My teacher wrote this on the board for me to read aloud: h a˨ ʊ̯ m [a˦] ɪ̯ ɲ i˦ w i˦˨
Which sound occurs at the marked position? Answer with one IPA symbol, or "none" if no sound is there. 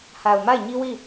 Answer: a˦˨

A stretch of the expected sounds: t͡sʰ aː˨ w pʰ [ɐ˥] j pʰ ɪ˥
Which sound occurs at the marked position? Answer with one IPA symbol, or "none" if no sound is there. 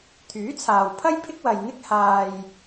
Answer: ɐ˥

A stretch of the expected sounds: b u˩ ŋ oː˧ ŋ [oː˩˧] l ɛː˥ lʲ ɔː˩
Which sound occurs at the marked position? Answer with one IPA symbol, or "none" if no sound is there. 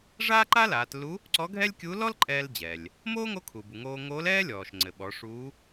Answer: oː˧˥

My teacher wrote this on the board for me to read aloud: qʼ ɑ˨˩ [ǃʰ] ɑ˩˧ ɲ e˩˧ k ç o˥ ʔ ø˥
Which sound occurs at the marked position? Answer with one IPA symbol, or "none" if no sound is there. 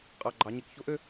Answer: ɡ͡ǃ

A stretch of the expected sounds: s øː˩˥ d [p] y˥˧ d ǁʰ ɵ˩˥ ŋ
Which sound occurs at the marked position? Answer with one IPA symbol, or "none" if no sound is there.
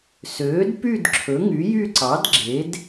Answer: p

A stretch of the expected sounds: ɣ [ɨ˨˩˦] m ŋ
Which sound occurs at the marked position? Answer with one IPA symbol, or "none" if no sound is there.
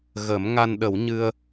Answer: ə˨˩˦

